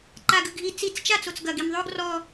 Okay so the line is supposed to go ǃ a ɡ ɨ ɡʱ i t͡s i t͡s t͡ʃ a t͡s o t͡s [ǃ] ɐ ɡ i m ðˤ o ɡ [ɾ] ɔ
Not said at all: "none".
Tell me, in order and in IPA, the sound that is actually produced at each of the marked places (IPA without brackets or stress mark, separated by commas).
ɡ, r